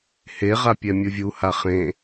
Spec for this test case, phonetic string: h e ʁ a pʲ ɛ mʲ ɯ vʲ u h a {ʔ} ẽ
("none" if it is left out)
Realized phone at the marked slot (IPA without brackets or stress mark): χ